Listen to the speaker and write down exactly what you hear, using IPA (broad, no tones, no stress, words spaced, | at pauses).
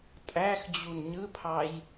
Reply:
tʼæxd͡ʑun ɲɯpʰɑj